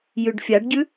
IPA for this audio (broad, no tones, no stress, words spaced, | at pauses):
jʉɖfʲaɖɟʉ